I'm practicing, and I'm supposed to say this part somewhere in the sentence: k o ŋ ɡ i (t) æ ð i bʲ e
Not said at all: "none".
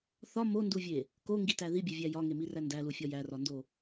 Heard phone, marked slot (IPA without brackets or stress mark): t